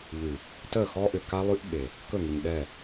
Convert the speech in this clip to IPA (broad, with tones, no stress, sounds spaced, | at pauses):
ʎ ʉ˨ | t ə˦˨ x ɔ˦ ʔ ʏ˨ k a˦ lˠ ʉ˦ ʔ ɓ e˨ | k ɵ˦˨ ŋ i˨ ɲ ɗ ɛ˦˨